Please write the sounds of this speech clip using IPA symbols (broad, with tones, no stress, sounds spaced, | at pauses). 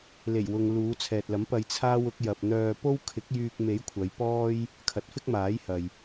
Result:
l e˨˩ j w ʊ˨ ŋ l uː˨˧ t͡sʰ ɛː˨ t̚ l ɐ˨˥ m p ɐ˧ j t͡sʰ aː˥ w ʊ˨˥ k̚ j ɐ˨ p̚ n̪ œː˧ p o˥ w kʰ ɪ˨˥ k̚ j yː˧ k̚ m e˨˥ j kʷʰ ɐ˨˧ j p ɔː˥ j | kʰ ɐ˨˥ t̚ f ɪ˥ k̚ m aː˨˥ j h ɐ˨ j